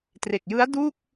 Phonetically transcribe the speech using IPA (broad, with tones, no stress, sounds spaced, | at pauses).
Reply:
t r e˨˩ k̚ j ɯ˦˥ a̯ d u˥˩ k̚